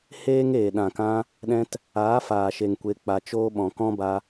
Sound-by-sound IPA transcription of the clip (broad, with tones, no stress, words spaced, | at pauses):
heː˦ŋeː˨ ɗã˨kã˧ | ɗɛ̃˧t | aː˨˦faː˨ʃe˨ŋ kʷe˧k͡pa˧t͡ʃoː˦ɓɔ̃˧ kɔ̃˦ba˧